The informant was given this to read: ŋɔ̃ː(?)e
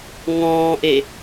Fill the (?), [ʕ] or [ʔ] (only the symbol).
ʔ